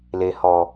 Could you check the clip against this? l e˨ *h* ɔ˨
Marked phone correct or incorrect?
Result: correct